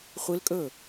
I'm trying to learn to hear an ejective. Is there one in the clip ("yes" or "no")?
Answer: yes